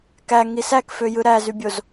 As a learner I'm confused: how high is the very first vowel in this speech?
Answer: low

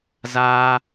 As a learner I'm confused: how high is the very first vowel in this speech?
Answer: low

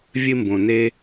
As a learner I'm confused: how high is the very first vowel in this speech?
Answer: high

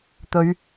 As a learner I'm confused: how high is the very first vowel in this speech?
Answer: mid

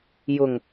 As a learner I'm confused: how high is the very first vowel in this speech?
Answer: high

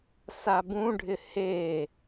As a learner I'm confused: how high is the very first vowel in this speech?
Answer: low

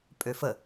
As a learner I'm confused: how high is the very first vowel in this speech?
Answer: mid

